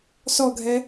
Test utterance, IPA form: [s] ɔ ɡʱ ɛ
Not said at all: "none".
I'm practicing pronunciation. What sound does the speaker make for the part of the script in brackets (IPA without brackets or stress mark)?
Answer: s